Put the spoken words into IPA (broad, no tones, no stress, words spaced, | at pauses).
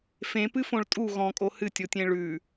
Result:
fẽpɨfõɭ tʼu ɣɔ̃kʼo hɨtʲotʲẽ ɭʉ